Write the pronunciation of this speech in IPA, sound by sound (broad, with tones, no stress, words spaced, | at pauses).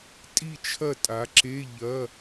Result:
tʼi˥˨t͡ʃʰɐ˥˨tʼa˩˧ǁe˧˥˧ ʎɐ˧˥˧